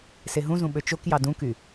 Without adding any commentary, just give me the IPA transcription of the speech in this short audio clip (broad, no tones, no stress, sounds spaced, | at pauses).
s e ɦ ũ z ũ ɓ ø t͡ʃ o k j ɑ d ũ k y